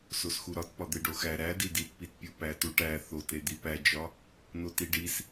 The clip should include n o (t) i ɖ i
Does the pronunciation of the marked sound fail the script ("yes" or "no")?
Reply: no